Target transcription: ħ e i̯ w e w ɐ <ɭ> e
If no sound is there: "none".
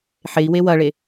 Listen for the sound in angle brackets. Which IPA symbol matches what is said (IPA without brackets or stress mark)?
ɭ